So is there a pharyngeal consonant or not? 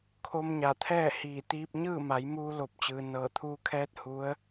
no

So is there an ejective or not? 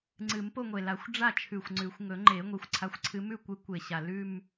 no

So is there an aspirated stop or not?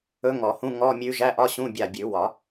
no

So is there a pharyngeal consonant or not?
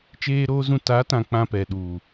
no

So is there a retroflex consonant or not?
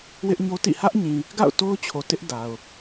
no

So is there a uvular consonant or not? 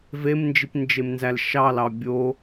no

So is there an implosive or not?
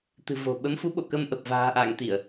yes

